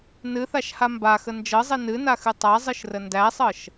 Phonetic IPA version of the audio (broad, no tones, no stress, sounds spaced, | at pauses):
n ɨ θ a ʃ h a m b a x ə n d͡ʒ ɤ zˤ i n ɨ n a x ɨ tˤ a zˤ ɨ ʃ r ə n d æ sˤ ɤ ʃ